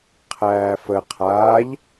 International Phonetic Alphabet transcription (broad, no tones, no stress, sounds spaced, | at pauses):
qʰ æː f ə qʰ aː ʎ